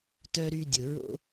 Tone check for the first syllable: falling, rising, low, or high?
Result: high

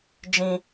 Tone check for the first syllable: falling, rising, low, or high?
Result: low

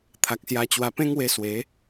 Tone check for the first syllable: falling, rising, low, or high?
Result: low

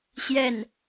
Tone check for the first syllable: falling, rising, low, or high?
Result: falling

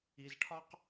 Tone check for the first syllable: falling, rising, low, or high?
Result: low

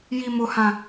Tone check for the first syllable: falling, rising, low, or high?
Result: high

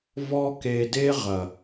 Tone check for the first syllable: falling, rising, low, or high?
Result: high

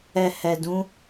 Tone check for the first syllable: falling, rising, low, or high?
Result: low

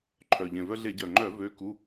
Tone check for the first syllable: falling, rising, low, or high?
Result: low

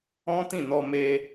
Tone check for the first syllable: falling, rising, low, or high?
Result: high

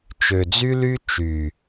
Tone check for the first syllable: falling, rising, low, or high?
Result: low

